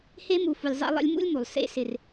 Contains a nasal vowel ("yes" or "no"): no